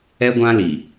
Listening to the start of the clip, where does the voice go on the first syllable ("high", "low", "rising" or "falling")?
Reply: high